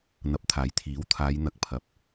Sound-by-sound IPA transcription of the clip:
n̪ ɐ˨˥ p̚ t̪ʰ aː˨˥ j t̪ʰ iː˨˥ w t̪ʰ aː˨˧ j n̪ ɐ˨˥ k̚ pʰ ɐ˨ p̚

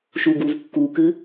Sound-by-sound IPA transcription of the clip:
ʃ u ɡ u v kː u k ɨ

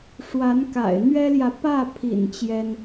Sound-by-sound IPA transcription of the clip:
ʂ w a˧˥ n k a̰˨˩ ɪ̯ n̪ ɥ ɛ˥ l j ä˨ p ä˥˩ pʰ ḭ˨˩ n t͡ɕ j ɛ˥ n

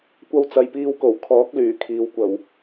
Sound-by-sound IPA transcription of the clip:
kʷ ɐ˧ w t͡s ɐ˨ j p iː˧ w k o˨˩ w kʰ ɔː˨˥ k̚ l yː˨˩ kʰ iː˨ w kʷ ɐ˨˩ w

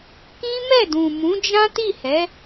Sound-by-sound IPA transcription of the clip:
k ĩ˦ m ɛ˦˨ d ũ˨ m ũ˨˦ d͡ʒ ã˦ t i˦˨ h ɛ˨˦

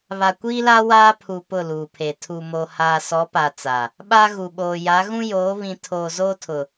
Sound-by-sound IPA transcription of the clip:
β a˨ kʷ iː˦ l a˦ w aː˦ pʰ u˨ p ʊ˦˨ l uː˨ pʰ e˨ tʰ u˨ m o˨ h aː˨ s ɔ˨˦ p a˨ t͡s a˨ | ɓ a˦ ɣ u˨ ɓ oː˨ j a˨˦ ɣ ũ˦ j oː˨˦ β ĩ˨ tʰ oː˨ z oː˦ tʰ ʊ˨

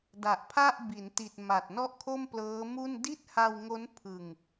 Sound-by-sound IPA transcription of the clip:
d a˨˩ ʔ pʰ a˥˩ ʔ b i˩˦ n t i˨˩ t̚ m a˨˩ t̚ n ɔ˥˩ ʔ kʰ o˥˩ m p l ɤː˦˥ m u˥˩ n d i˥˩ t̚ h a˧ w ŋ o˦˥ n pʰ ɯ˧ ŋ

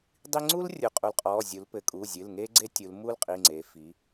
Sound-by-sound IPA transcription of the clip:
dˤ i˥ ŋ͡ǀ u˥ l rʲ u˩˧ qʼ u˩˧ l qʼ ɔ˩˧˩ zʲ u˩˧ l p ɘ˩˧ kʼ u˩˧˩ zʲ ɨ˩˧˩ l ŋ e˥ ɡ͡ǀ e˥ tʲ u˩˧ l m u˥ l qʼ i˩˧˩ ŋ͡ǀ e˩˧ f i˩˧

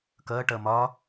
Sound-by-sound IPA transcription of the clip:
k ʌː ʈ ʌː m ɒ

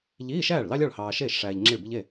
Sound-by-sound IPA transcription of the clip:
ʎ iː˧˥˧ ʃ æː˥˩ ɭ l ɑ˥ lʲ ɑ˥˩ ɭ h ɑː˨ ʃ eː˥˩ ʃ ʂ æː˨ ʎ ŋ͡ǁ i˥˩ ɭ b i˥ ʎ e˥˩

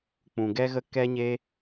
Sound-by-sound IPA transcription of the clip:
k͡p ũ˨ ɡ ɛ˦ ɣ ə˦ k ɛ˦ ɲ e˦

